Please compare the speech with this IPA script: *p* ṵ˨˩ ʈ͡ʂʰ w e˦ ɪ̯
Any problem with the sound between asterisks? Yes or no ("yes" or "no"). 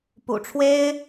no